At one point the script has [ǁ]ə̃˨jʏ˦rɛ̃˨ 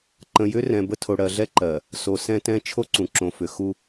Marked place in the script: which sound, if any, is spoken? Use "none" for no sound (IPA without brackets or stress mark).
ǃ